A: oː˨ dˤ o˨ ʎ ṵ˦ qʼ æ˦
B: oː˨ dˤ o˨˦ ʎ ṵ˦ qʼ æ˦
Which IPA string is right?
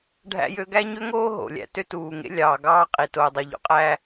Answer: A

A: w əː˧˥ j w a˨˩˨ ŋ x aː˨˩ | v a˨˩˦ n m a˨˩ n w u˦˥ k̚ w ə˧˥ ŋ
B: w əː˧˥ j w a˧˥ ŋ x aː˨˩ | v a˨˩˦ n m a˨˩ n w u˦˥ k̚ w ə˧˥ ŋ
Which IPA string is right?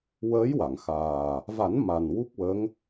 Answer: A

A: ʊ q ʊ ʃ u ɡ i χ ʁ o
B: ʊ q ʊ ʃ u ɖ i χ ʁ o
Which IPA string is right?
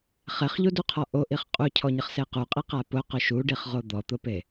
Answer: B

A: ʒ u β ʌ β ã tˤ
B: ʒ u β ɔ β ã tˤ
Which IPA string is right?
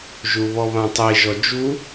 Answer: B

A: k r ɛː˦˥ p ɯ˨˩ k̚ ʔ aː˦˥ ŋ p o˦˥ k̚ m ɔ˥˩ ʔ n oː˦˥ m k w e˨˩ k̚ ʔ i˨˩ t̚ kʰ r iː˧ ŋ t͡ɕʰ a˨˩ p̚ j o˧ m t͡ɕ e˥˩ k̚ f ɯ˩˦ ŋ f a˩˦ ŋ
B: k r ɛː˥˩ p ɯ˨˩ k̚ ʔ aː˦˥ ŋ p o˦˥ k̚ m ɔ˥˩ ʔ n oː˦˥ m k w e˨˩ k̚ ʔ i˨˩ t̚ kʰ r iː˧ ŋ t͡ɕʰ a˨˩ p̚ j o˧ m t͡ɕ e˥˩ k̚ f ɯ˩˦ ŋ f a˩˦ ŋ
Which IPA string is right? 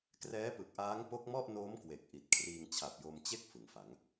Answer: A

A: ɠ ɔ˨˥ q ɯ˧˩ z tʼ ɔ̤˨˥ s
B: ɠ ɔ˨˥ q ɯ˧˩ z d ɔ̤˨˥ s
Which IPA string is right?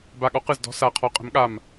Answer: B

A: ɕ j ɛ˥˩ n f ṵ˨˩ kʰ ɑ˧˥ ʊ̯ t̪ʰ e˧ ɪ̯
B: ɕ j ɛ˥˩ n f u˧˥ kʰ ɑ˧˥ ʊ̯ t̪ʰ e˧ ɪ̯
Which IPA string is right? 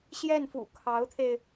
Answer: A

